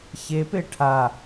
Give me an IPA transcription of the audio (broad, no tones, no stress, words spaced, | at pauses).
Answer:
çepe ʈʰa